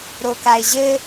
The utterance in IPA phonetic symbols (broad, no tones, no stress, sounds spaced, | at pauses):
ɾ o k a ɪ̯ ʑ ɘ